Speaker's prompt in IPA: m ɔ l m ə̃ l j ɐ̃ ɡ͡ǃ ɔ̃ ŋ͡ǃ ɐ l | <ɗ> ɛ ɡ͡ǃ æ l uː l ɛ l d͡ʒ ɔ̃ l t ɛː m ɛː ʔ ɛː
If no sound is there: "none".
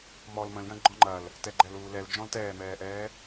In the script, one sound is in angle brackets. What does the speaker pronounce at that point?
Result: t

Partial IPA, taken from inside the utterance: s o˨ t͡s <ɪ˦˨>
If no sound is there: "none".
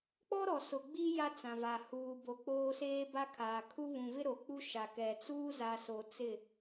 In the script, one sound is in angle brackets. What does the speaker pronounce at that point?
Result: ɪ˦˨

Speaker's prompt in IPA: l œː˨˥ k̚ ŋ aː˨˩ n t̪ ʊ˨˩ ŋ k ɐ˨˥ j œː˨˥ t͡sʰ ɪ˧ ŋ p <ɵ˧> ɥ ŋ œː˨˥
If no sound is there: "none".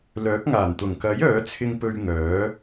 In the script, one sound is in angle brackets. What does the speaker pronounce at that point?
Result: ɵ˧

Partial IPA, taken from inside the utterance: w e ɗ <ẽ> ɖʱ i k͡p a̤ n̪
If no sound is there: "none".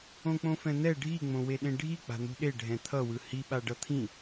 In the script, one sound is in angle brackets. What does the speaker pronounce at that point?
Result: ẽ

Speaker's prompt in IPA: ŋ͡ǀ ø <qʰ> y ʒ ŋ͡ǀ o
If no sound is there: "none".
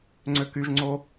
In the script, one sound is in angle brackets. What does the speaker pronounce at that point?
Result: k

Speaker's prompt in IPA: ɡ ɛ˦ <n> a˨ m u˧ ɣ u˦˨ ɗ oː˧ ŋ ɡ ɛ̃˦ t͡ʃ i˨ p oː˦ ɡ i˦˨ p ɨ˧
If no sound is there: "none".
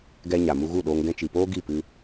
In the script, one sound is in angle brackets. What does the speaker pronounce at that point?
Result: ɲ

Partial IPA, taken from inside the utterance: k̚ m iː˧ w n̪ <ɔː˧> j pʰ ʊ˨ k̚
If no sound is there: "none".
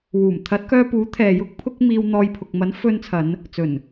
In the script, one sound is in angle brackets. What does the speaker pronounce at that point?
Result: ɔː˧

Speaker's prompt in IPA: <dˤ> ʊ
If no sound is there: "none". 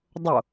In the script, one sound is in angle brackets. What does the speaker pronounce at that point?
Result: dˤ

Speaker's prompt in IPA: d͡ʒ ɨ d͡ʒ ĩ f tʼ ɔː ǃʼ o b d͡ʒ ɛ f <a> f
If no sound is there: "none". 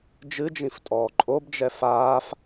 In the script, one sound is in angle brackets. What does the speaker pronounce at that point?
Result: aː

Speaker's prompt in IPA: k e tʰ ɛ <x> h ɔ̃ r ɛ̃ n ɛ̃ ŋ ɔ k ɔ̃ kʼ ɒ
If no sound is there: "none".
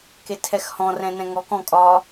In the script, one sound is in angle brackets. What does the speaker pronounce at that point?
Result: x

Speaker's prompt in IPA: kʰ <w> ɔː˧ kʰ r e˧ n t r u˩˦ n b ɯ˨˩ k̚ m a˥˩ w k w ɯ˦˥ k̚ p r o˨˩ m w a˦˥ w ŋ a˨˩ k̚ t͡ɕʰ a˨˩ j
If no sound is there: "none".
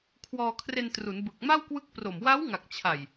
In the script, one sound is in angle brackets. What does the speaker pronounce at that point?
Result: w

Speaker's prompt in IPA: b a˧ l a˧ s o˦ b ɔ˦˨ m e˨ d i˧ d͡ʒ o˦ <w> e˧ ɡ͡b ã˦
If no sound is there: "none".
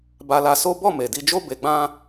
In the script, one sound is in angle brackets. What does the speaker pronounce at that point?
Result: b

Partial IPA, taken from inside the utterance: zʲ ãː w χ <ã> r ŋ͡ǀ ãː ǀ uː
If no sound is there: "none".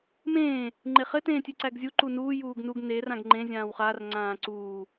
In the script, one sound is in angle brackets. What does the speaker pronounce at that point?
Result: a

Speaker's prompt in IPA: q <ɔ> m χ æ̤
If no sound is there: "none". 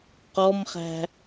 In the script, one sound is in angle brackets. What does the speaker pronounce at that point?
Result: ɔ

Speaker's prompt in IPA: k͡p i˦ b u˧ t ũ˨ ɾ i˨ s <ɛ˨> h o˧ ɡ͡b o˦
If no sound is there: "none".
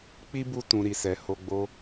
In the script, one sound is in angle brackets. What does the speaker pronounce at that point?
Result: ɛ˨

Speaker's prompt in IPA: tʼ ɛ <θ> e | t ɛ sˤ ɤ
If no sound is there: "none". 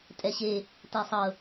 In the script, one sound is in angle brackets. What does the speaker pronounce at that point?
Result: ɕ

